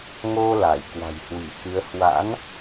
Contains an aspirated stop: no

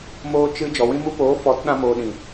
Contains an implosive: yes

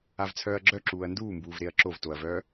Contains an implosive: no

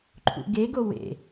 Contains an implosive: no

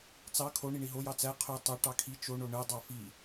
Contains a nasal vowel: no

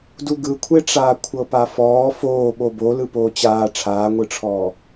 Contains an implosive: yes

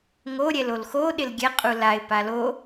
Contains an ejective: yes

